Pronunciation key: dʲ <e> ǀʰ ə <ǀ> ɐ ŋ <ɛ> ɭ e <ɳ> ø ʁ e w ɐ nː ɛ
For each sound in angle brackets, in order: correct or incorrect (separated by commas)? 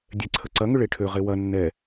incorrect, correct, incorrect, incorrect